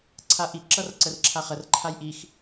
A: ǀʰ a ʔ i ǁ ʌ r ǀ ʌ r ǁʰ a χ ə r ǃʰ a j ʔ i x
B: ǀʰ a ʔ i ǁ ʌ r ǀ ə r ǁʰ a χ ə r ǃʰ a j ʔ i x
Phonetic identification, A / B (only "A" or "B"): B